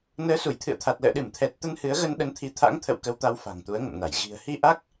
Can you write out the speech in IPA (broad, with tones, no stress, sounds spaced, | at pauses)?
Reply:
n əː˨˦ s u˧˩ j t̪ʰ ɨ̰˧˨ ə̯ t̪ʰ a˨˩ t̚ l ə̰ː˧˨ ɗ ɨ˧˩ m t̪ʰ ɛ˨˩ t̚ t̪ ə˧ n h ɨ˨˦ ə̯ ɣ ə˧ n ɗ ə˨˦ n t̪ʰ i˨˦ t̪ʰ a̰˧˥ ŋ t̪ʰ ə̰˧˨ w k ə˨˦ w t̪ a˨˦ w f a̤˨˩ ŋ t̪ u˨˦ ə̯ ŋ ə̰˧˨ m n a˧˩ j ɣ i̤˨˩ ə̯ h i˧ ʔ a˦˥ k̚